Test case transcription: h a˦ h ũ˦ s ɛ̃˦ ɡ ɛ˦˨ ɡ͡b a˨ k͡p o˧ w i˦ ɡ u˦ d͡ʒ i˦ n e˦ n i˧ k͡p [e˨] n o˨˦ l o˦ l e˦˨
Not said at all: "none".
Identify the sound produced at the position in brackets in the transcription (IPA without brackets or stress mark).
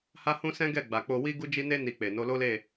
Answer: e˨